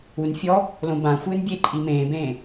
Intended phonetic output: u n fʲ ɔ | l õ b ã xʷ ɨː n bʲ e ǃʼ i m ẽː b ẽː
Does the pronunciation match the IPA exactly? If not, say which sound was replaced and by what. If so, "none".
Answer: none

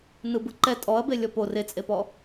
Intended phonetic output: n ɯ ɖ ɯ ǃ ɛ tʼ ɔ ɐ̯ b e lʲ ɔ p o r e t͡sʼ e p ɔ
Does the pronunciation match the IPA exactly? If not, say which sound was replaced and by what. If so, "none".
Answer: ɖ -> b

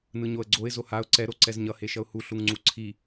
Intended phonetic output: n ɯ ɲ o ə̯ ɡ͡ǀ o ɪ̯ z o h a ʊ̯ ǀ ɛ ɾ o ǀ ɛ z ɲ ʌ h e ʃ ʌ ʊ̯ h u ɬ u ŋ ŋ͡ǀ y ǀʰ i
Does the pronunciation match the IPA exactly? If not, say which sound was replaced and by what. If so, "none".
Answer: y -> u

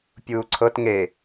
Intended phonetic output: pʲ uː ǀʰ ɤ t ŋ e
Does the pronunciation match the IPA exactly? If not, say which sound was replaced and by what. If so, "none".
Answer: none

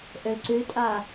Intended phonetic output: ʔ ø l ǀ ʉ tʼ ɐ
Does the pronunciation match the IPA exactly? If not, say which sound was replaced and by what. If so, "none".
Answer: ɐ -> a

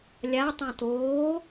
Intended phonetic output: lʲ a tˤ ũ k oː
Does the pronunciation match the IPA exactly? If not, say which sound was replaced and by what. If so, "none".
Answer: k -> t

